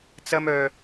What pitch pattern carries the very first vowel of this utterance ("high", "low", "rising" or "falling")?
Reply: high